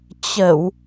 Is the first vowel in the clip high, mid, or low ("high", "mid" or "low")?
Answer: mid